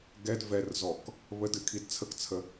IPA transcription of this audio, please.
ɡ ɛ d v ɛ r z ɔ k | β ə d ɨ kʰ i d t͡sʰ ə k t͡sʰ ə

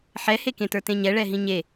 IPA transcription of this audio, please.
ħ ɛ h e k ẽ t ə˞ t ẽ ɲ ɛ ɭ ɛ ɦ ĩ ɲ e

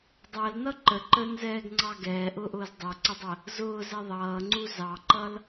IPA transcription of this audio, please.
dˤ ɜ l n ʌ ǃ ə ǃ əː n z ɛː ɡ ŋ͡ǀ ɑ ɡ ɛː ʔ ʊː ʔ ʊː z dˤ ɜ ǀ ɪ dˤ ɜ | z ʊː z ɛ ðˤ ʌː ŋ͡ǀ u z ɑ ǃ ʌ l

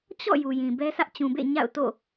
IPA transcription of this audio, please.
t͡ɕ ɔ̰˦˨ j u˨ j ĩ˨ b ɛ˦ s ä˦ ʔ t͡ɕ ũ˨ b ḛ˦˨ ɲ a̰˦˨ ʊ̯ t o̰˦˨

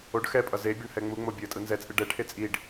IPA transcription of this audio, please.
o ɖ x ɛ pʼ ʌ z e bʲ ʌ ɳ h ɛ ŋ͡m u ŋ͡m o bʲ o ə̯ tʼ ɯ n z ɛ t͡sʼ ɯ ɖ ɛ ʈʰ e t͡sʼ i ɖ

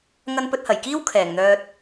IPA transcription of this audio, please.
ŋ ɐ˧ n p ɵ˧ t̚ h ɐ˨˩ j k iː˥ w kʰ ɛː˨˩ ŋ n̪ œː˧ t̚

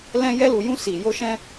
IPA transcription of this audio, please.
l ɛ̃˦ j ɛ˦ l u˧ j ũ˦ s i˧ j o˦ ʃ ɛ̃˦

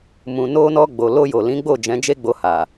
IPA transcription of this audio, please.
m ũ˨ n o˧ n ɔ˧ ɡ͡b o˨ l o˧ j o˨ l ĩ˨˦ ɡ͡b o˦˨ d͡ʒ ɛ̃˨˦ d͡ʒ e˦ ɡ͡b o˧ h a˨

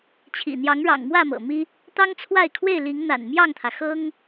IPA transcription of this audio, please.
t͡ɕʰ ḭ˨˩ n̪ j ɑ˨˦ ŋ ɻ ɑ̰˨˩ ŋ m w ä˥˨ m ɤ̰˨˩ m i˦ | t̪ ɑ˦ ŋ t͡sʰ w a˥˨ ɪ̯ kʰ w e˥˨ ɪ̯ l i˨˦ ŋ n̪ a̰˨˩ n m j ɑ˥˨ ŋ t̪ʰ ä˩ x ɤ˦ ŋ

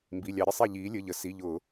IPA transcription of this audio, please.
m b i˩˧˩ lʲ ɑ˧˩˧ ɾʲ ə˦ sˤ i˧˩ ʎ iː˩˧ lʲ ə˩˧˩ ʎ ə˩˧ s i˩˧˩ ʎ ʊː˧˩˧

